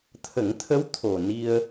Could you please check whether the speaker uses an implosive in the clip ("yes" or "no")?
no